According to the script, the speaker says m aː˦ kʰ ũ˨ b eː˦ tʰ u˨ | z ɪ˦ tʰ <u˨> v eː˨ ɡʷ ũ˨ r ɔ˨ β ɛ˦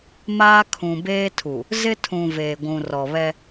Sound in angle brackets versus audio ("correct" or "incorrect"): incorrect